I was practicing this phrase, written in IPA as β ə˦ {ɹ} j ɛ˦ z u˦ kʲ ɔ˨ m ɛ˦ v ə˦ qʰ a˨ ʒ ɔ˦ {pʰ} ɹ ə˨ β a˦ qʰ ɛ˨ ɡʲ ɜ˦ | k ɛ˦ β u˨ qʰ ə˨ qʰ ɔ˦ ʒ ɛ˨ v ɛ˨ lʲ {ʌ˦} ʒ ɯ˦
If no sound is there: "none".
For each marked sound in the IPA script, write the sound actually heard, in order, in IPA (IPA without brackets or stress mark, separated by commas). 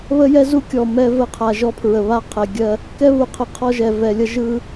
none, pʰ, ʌ˦